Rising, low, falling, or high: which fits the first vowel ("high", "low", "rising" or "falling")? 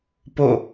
falling